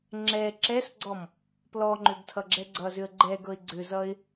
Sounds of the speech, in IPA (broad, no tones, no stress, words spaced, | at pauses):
ŋ͡ǁɛ ǁɛsɡ͡ǀɔm | plɔŋ͡ǃʏɡtʰʌɡ͡ǁɛ ɡ͡ǀʌzʏə̯ ɡ͡ǃɛɡɤɪ̯ ɡ͡ǀʏzʌɪ̯